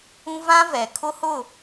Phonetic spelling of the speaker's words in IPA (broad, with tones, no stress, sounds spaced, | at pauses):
ũ˦ v ã˦ v ɛ˨ kʰ ʊ˦ h ʊ˦˨